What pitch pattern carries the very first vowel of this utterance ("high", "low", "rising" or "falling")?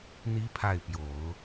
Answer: rising